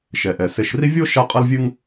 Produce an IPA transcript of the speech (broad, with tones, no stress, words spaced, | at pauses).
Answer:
ʃɛ˩ʔɛ˩ se˨ʃri˦vʲo˥ ʃa˦qʼɐ˦lvʲɨ˦ŋ